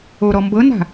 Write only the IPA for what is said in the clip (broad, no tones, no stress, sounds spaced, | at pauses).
o ɾ ɔ m b ɤ n a̤